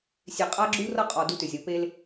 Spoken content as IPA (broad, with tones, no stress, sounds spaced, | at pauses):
sʲ e˨ qʼ a˦ ɡ͡ǁ u˦ r ʌ˦ qʼ ɔ˨ d u˦ t ʏ˨ zʲ ʌ˨˦ p e˦ l